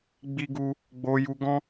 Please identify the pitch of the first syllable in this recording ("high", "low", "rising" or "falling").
high